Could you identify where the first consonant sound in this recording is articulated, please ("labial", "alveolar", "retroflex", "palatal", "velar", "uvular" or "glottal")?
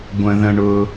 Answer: velar